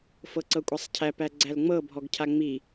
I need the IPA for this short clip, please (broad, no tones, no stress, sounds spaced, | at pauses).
f ɤ ǀ ɤ kʷʼ a sˤ cʰ æ p æ ɡ͡ǀ æ l ŋ͡m ɤ bʱ ɔ ɡ cʰ a ŋ͡m i